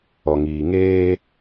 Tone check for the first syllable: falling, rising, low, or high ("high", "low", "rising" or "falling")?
low